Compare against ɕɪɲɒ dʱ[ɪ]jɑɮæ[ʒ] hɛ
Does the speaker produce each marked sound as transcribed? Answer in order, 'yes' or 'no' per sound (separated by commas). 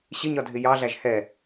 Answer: yes, yes